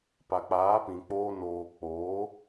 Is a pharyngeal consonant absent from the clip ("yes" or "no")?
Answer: yes